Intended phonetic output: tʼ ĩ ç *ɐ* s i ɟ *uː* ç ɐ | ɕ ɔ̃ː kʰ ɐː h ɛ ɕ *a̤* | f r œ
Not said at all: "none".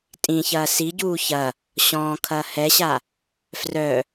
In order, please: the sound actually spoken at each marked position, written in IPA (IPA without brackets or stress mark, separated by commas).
ɐː, uː, a